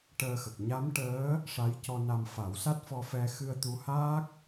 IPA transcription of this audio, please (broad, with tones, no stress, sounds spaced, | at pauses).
ʈ əː˧ x ə˨˩ k̚ ɲ a˧˥ m ʈ əː˧˥ | ʂ a˧˥ j c ɔ˧ n a˧ m f a˨˩˦ w s a˦˥ t̚ f ɔ˧ f ɛ˧ x ɨ˧ ə̯ t̪ u˧˥ h aː˦˥ k̚